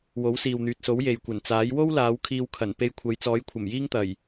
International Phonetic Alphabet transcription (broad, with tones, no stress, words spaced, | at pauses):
wo˨˥wsiː˨wn̪yː˨t̚so˨˥w je˨jkʷɐ˨˩nt͡saː˨˥j wo˥wlaː˨˧w kʰiː˧wkʰɐ˨˩n pe˧jkʷʰɐ˨˧jt͡sɔː˨˥jkʷʰɐ˨˩m jiː˥ŋt̪ɐ˨˩j